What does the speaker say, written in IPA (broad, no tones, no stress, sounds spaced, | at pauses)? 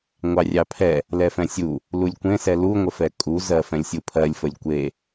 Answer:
ŋʷ ɑ rʲ ɑ pʰ ɛ | l ɛ f ɛ̃ sʲ u | l u lʲ kʷ ẽ s ɛ l u ŋʷ ə f ɛ kʼ u z ɜ f ɛ̃ lʲ sʲ u pʰ ɜ lʲ f ə lʲ kʷ e